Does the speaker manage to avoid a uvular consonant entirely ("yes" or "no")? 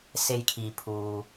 yes